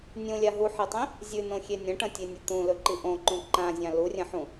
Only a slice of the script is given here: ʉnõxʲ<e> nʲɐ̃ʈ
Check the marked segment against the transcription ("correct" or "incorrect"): correct